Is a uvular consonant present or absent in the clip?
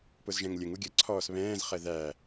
present